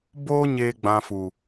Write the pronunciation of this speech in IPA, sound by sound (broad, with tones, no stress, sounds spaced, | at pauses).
b oː˦ ɲ eː˦ ɡ͡b ã˧ f u˨